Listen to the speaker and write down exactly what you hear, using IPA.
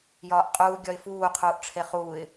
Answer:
j ɒː ʔ qʼ uː ɡʲ ɒ ɪ̯ f uː qʰ uː ʔ ʈ͡ʂʰ e χ uː ɪ̯

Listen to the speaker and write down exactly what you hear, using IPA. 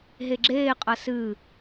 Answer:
ɦ e ɡ͡ǁ eː qʼ ɐ s ɨː

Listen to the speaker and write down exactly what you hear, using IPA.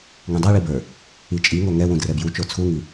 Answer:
ŋ ũ dˤ a ɭ i b ə˞ | i t͡ʃʼ i ŋ o ŋ ɛ w ũ d r ɛ b j u t͡ʃ o t͡sʰ u ŋ i

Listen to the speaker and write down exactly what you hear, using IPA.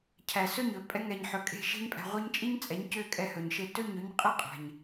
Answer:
cʰ æ˨ s ɵ˦˨ ɲ ɵ˨ pʼ ɛ˧ ŋ ɛ˨ ɲ ħ ɵ˨ kʼ e̤˦˨ ʃ e̤˦ ɲ pʼ æ̤˧ ʁʷ i˧ ɲ t͡ʃʼ i˦ ɲ t͡sʼ ɛ˨˦ ɲ c ø˦˨ kʼ ɛ˧ h ɵ˨ ɲ ʃ e˧ t ɵ˦˨ ɲ ɵ˧ ɲ qʼ i˦ qʼ æ̤˨ ɲ

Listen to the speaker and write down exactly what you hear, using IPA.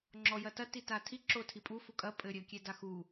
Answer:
ŋ͡ǁ ɔ j ɐ t ɐ t i t a tʰ i ǁ o tʰ i pʼ u f u kʼ ɐ pʼ ɘ ɾʲ ɘ kʲ e d a x u

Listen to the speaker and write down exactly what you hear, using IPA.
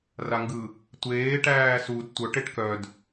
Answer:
r a ŋ ɡ ɯ | tʷ eː ʈ æː s u d tʷ œ ʈ e ʈ k œ d

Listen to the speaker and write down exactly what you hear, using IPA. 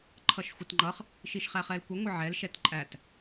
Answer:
ǃʰ ʌ ʃ xʷ ə t ŋ͡ǃ ʌ χ | ʃ i ʃ χ æ χ ɛ l kʷ ɛ ŋʷ ə ʕ ɛ l ʃ ɛ t ǃʼ æ t

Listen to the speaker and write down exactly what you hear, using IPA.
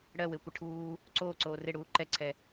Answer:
ɽ ɜ w e kʷ ə ʈʰ uː | ǀ oː ǀ oː r ɪ ɽ uː ǃ ɛ ǀʰ ɛ

